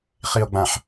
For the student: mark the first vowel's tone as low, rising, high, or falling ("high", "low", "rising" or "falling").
low